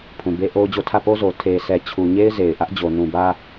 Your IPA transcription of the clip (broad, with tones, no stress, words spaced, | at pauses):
pʰũ˨be˦ʔo˦ʊ̯d͡ʑo˦˨ tʰä˦˨po˦zo˨ tʰe˨sɛ˨ t͡ɕʰu˨ɲe˦ɪ̯ ze˨ɪ̯ʔä˦ʔ d͡ʑo˨nũ˨bä˦